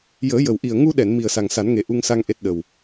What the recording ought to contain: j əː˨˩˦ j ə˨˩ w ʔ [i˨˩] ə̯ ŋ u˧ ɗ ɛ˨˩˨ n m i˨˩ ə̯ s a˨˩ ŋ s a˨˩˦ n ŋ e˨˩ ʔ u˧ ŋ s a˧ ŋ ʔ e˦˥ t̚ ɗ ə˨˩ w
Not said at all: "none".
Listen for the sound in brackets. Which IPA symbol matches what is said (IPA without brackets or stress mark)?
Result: i˨˩